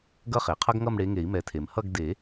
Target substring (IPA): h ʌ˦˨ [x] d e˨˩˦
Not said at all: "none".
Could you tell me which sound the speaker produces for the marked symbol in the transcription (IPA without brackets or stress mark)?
ɡ